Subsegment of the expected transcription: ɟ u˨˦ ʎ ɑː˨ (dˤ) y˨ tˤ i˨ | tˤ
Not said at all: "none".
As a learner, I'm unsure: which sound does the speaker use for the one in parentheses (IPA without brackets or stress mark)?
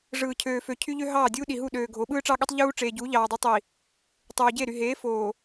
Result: dˤ